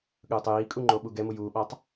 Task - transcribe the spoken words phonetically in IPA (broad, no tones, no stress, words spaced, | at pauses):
ɠɯːtˤjiːkʼu ŋ͡ǃoɓuɡɛmu juːɓatˤ